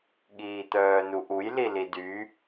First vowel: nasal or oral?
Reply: oral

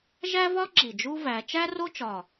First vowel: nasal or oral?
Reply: oral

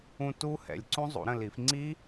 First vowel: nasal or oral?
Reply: nasal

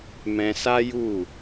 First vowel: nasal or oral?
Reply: nasal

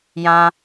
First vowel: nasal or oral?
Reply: nasal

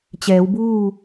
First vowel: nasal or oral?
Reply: oral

